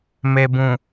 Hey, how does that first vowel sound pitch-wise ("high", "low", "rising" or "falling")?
low